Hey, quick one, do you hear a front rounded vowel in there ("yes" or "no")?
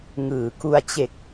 no